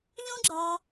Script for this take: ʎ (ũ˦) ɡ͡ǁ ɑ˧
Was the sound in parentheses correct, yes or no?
yes